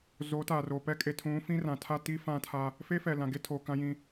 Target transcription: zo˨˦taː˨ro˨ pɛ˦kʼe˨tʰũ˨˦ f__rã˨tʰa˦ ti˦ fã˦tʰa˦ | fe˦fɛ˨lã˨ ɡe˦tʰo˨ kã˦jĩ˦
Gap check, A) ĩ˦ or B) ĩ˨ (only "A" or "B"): A